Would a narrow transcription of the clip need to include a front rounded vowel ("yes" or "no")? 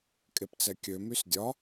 yes